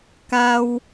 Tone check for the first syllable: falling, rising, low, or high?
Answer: low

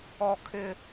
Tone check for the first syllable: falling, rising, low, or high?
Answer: high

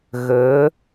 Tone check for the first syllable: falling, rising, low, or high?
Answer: rising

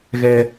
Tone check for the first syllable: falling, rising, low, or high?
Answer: low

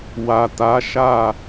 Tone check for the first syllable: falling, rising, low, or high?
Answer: low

